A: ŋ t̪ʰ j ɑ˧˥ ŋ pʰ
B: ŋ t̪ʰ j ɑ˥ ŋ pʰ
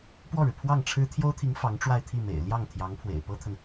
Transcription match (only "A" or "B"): A